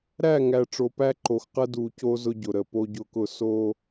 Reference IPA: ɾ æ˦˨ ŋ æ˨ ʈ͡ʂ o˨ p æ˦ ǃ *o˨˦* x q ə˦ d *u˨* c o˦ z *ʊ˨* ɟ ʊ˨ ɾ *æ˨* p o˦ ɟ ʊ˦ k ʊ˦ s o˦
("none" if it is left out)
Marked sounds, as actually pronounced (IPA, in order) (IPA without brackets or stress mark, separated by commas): o˨, u˨, ʊ˦, ə˨